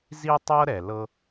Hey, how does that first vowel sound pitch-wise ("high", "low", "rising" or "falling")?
high